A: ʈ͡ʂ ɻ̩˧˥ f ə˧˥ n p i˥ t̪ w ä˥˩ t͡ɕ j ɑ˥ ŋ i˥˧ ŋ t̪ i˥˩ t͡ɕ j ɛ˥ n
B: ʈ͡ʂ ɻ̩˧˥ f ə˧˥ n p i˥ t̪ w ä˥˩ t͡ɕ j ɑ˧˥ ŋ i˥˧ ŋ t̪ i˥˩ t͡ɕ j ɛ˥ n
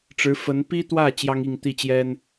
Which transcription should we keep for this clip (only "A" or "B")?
A